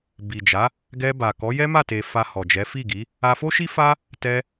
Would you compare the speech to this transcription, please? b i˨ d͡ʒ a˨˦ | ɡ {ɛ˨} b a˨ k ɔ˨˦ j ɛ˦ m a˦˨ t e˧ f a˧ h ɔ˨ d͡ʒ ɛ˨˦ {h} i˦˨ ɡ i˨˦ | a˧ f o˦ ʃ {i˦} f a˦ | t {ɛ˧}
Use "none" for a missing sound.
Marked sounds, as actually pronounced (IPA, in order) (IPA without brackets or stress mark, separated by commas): ɛ˧, f, i˦, ɛ˧